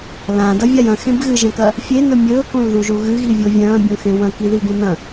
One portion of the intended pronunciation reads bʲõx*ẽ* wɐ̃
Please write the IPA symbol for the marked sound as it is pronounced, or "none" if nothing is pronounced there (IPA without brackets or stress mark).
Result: ẽ